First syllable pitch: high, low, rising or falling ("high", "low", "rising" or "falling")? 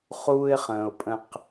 high